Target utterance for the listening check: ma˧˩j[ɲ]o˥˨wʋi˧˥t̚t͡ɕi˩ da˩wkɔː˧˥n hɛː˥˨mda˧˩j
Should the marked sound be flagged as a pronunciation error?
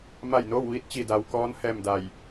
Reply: yes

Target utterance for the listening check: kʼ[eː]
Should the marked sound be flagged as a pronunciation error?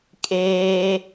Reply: no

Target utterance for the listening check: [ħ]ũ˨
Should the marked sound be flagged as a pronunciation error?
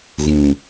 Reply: yes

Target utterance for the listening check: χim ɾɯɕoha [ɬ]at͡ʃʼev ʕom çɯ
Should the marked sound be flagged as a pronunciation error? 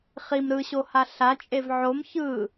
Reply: no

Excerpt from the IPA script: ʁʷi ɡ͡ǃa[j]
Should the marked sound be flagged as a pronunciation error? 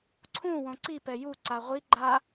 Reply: yes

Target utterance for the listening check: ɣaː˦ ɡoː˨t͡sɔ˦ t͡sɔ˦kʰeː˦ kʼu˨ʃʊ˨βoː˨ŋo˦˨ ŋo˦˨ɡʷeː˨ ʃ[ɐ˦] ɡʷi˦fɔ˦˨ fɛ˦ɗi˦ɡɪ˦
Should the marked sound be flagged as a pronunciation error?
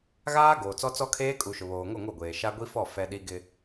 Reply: yes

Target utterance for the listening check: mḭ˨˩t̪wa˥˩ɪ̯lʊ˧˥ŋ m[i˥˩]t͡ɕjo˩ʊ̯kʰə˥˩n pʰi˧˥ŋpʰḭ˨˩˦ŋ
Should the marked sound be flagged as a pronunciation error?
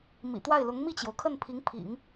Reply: no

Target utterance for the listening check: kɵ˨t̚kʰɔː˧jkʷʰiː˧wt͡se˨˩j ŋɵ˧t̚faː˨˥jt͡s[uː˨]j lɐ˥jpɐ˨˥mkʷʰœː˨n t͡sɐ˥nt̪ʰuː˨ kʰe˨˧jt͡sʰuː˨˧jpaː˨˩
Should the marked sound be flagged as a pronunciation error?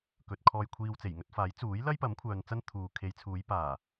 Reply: yes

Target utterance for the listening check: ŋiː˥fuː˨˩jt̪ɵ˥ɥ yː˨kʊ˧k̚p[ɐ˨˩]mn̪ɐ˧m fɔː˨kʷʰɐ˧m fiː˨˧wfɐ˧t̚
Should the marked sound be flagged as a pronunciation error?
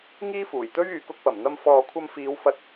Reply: no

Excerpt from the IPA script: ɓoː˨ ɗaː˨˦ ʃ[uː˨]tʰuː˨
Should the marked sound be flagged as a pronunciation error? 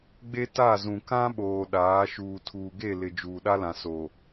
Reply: no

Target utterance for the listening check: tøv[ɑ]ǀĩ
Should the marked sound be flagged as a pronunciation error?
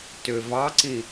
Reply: no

